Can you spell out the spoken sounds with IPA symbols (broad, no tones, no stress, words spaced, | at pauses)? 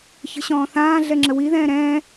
çə̤ɕɔ̃ːθãː ɮɛŋ͡ǁəwi ðɛ̃ːɾɛ̃ː